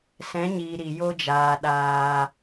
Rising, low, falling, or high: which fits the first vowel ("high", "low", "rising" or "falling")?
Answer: rising